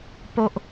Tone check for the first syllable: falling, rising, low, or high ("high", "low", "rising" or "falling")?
high